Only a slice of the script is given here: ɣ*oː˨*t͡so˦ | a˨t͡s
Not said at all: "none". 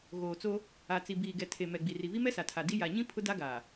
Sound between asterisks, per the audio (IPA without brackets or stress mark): oː˨